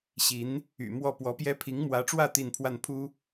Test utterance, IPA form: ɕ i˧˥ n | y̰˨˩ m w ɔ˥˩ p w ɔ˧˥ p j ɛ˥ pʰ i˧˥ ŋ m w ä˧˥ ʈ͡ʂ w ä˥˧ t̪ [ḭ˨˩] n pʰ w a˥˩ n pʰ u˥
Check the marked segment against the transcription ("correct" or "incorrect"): incorrect